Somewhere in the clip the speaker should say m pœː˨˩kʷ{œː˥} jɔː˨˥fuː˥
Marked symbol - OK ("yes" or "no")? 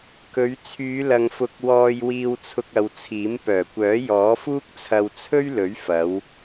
no